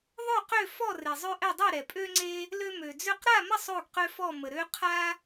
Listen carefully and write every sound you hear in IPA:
ðˤ ø˥˨ q ø˥˨ f ɔ˥˨ r e˨ zˤ ø˦ ʔ ɛ˥˨ dˤ ɛ˥˨ ɾ ɛ˨ pʼ ø˦ ŋ͡ǀ e˦ | l ø˦ m ø˨ d͡z ø˥˨ q ɾ a˥˨ m ə˥˨ sˤ o˥˨ ɡ q ø˦ f ɔ˥˨ m ə˨ ɾ ø˦ qʰ a˦

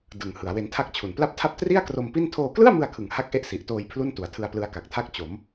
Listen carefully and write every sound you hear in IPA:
d ɯ˨˩ ŋ h ɯ˩˦ a̯ w e˧ n tʰ a˥˩ k̚ t͡ɕʰ u˨˩ n p l a˥˩ p̚ tʰ a˥˩ p̚ t r i˥˩ a̯ k r o˧ m p i˥˩ n tʰ oː˧ k l ɯ˥˩ a̯ m ɯ˧ a̯ kʰ ɯ˨˩ ŋ h a˥˩ k̚ ʔ e˥˩ ʔ s i˨˩ ʔ t oː˧ j pʰ l u˥˩ n t u˩˦ a̯ tʰ ɯ˧ a̯ p l ɯ˦˥ a̯ k a˨˩ k̚ tʰ a˥˩ k̚ t͡ɕ o˩˦ m

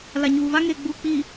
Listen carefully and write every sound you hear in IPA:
l a˨ ɲ uː˨ β a˦ ŋ eː˨ ɡ͡b uː˨ k͡p iː˨

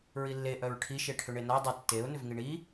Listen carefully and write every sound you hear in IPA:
ɹ i lː e ʔ œ ɹ ʈʰ i ʃ e ʈʰ ʏ ɳ e n a dˤ ə tː e ʊ̯ n ʏ v ŋ i ɳ i

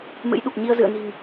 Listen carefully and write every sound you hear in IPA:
m ɨ̰˧˥ j ɗ u˨˩ k̚ ɲ i˧ ə̯ z ɨ̰˧˨ ə̯ n i̤˨˩ ŋ

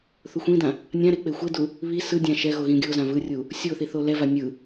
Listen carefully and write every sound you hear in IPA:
θ u xʷ ĩ d ã | nʲ ã ɾ e k͡p e xʷ e d u | β i s ɯ dʲ ã ʃ ɛ ɣ o ɣ ĩ ɡʲ o z ã v ɯ rʲ u | sʲ o θ i θ o l ɛ v a nʲ ɯ

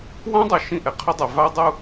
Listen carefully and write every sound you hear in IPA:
w ã˦ dˤ o˨ ʃ ĩ˦˨ ʔ ɛ˨ qʰ ʊ˦ dˤ e˨ v a˦ dˤ u˦

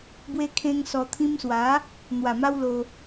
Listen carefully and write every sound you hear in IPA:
b w e˧ kʰ ẽ˧ ŋ s ɔ˧ t̪ʰ ĩ˧ m s w a˨˦ | n̪ w a˨˩ m a˧ w l o˧

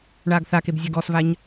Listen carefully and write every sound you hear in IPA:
ɳ aː ɡ θ a k e b zʲ a ɡ ɔ s v a ɲ

